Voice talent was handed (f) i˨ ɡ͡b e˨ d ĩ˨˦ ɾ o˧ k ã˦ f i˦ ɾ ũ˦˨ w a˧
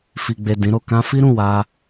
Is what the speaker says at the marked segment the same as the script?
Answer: yes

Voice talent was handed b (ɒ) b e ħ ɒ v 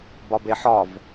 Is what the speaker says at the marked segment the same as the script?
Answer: yes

